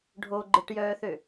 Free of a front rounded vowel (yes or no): no